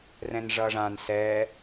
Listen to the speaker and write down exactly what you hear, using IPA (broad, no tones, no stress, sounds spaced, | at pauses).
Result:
r ɛ̃ n ʐ ʌ ʐ ã n s ɛ